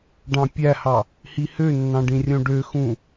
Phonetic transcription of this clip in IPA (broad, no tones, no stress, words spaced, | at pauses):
ɖɑ̃pʲæhɑ | hihønːɑ̃ ɖĩrʲõɖøxũ